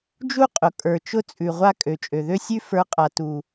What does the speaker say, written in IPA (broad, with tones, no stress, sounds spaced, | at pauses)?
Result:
d͡ʒ u˦ qʼ ʊ˨ kʼ ə˞˨ t͡ʃ ʊ˦ t͡sʼ ʉ˨ ʁʷ a˦ kʼ ø˨ t͡ʃʼ ø˨ ð ø˦ sʲ ʉ˦ f ə˞˨˦ qʼ a˨ t u˨